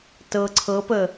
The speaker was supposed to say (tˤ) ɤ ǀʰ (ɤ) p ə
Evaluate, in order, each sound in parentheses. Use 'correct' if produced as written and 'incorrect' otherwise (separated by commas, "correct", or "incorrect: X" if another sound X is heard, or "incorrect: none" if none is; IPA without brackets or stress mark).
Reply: incorrect: t, correct